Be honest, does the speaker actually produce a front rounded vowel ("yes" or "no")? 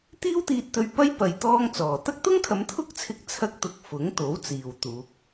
no